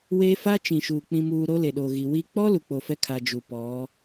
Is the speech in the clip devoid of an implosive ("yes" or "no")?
no